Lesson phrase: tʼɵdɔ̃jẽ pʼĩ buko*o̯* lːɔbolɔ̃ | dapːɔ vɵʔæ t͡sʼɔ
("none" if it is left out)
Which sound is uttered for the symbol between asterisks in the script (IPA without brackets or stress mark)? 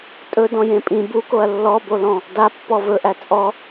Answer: ɐ̯